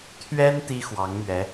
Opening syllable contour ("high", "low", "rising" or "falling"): high